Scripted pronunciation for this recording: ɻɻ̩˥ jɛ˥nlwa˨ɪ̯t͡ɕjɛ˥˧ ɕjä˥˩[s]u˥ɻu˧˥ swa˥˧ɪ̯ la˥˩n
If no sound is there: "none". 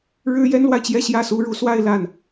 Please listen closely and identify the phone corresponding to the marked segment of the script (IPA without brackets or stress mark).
s